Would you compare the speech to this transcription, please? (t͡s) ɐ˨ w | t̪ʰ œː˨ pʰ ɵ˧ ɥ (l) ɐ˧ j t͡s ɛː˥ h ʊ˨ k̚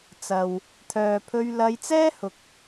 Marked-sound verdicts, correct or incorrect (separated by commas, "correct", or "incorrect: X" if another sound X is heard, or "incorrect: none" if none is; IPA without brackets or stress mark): correct, correct